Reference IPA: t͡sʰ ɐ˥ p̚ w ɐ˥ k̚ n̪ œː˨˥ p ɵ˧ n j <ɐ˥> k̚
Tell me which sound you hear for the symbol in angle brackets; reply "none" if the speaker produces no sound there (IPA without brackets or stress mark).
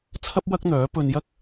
ɐ˥